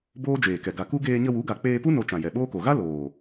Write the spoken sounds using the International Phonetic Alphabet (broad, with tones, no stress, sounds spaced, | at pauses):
b oː˦ d͡ʒ eː˨ k ɛ˨ ɡ a˨ k u˦ ɡ eː˧ ɲ ə˧ w u˨˦ ɡ a˨ k͡p eː˧ p u˦ n o˧ t͡ʃ ã˨ j ɛ˨ ɓ oː˦ k o˨ ɣ a˦ l oː˨